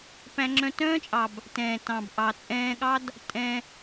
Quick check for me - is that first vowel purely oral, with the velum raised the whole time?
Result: no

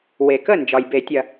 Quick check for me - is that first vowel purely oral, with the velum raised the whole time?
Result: yes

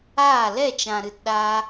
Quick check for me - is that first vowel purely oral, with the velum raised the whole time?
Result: yes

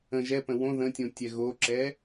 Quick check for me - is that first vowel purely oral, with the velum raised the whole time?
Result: no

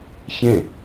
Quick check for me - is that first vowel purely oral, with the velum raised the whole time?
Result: no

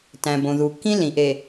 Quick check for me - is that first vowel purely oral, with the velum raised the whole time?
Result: no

